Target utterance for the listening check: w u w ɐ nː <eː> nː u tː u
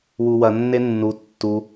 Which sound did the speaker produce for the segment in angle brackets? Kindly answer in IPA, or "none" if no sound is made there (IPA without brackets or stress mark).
e